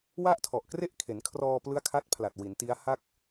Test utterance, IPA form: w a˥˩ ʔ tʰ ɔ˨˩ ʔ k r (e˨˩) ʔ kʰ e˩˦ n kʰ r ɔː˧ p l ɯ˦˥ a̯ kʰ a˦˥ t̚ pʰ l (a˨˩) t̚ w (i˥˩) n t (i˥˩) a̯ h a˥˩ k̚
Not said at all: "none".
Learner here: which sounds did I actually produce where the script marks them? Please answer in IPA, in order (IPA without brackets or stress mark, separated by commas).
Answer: e˥˩, a˨˩, i˩˦, i˦˥